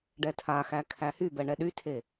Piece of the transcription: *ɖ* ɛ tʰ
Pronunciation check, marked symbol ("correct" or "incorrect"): correct